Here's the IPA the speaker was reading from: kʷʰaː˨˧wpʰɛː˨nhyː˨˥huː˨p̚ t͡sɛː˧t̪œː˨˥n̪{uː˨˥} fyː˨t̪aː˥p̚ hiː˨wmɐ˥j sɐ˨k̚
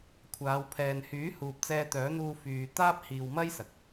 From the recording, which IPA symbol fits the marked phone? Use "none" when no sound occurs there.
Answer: uː˧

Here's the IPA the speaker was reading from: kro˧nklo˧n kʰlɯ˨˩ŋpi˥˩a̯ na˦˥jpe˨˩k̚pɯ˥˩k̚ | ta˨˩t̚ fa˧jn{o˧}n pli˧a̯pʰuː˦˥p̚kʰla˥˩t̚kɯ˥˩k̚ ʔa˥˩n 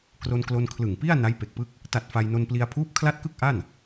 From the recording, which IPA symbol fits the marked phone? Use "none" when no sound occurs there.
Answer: o˧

